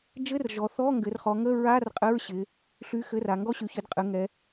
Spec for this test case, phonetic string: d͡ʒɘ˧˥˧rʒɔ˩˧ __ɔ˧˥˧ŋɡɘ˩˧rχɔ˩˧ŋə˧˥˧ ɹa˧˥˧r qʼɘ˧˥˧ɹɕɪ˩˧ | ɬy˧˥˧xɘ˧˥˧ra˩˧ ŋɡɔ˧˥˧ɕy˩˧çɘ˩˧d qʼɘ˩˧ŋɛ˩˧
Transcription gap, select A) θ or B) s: A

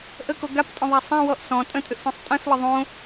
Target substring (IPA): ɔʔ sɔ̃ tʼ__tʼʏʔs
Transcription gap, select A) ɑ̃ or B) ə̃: B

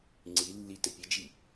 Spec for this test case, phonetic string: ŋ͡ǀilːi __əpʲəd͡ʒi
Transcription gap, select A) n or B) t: B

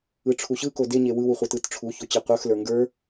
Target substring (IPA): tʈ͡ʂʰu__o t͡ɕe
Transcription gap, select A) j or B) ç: B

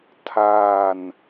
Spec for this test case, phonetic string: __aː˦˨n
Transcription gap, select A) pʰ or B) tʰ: B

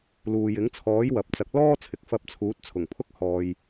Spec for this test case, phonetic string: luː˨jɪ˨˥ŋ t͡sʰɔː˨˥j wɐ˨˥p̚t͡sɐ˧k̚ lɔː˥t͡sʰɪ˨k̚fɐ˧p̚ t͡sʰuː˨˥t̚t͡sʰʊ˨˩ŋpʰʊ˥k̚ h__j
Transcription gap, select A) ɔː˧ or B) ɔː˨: A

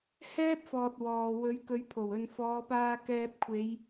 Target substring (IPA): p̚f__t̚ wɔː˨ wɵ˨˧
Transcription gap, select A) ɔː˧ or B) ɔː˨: B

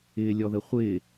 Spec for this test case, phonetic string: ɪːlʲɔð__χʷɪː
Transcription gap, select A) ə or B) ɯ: A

